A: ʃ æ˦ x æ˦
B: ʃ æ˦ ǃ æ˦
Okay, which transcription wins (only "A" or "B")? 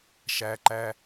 B